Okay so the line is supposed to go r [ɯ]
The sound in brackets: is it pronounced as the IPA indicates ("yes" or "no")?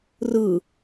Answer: yes